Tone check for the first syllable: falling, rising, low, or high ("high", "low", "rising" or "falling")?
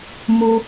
high